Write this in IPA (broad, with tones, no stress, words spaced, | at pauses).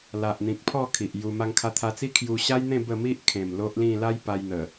la˨ʔn̪ĩ˨k̚pʰɔ˥˧ kʰi˨ʔju˧ ma˧ŋkʰa˧t̪ʰa˧t͡si˦ kʰju˧ɕa˦jn̪ẽ˥˧ bə˥˧ mi˦ʔ kʰẽ˨˩m lo˦ʔlĩ˥˧ la˦jpa˧jn̪ə˨˩